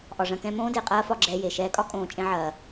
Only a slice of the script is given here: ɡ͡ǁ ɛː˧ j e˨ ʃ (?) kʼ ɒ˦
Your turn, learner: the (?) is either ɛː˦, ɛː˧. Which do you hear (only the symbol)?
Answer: ɛː˧